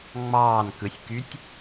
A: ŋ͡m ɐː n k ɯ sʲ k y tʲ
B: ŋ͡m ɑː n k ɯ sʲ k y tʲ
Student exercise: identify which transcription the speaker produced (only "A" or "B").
B